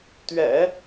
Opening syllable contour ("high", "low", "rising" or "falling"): low